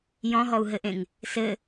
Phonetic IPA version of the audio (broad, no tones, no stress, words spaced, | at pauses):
jɔ̃ɦɔu̯ɦɘʔẽŋ | sɘ